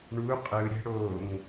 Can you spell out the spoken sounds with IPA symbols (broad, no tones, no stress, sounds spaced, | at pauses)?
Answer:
ɳ u qʼ ɯ ɾʲ ɛ̤ ɽ o ŋ